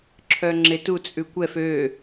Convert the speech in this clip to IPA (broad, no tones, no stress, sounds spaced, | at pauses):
ǁʰ œ ŋ͡ǁ e t u t͡sʼ ʉ kʷ ɛ f ø